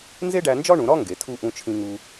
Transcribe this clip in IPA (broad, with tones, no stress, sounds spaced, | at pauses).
n z e˥ ɖ æ˧ n d͡ʒ ɒ˥ ɳ ũ˩˧ ɾ ɒ˥ ŋ ɡ e˩˧ tʰ u˥˧ ʔ ũ˧ t͡ʃʰ ĩ˧ ŋ u˧